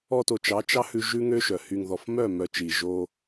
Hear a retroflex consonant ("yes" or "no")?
no